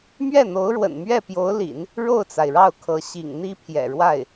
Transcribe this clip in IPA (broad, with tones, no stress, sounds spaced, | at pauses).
m ɥ ɛ˥˩ n̪ o˧˥ ʊ̯ ɻ w ə̰˨˩ n m ɥ ɛ˥˩ p j o˧˥ ʊ̯ l ḭ˨˩˦ n | ɻ o˥˩ ʊ̯ t͡s a˩ ɪ̯ ɻ ɑ˥˩ ʊ̯ kʰ ɤ˧˥ ɕ ḭ˨˩ ŋ n̪ i˥ pʰ j ɛ̰˨˩ ɻ w a˥˩ ɪ̯